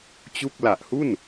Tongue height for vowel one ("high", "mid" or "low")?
high